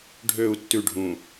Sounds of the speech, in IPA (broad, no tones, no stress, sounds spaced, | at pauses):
ɖʱ ø u̯ tː ʉ ɖʱ ũ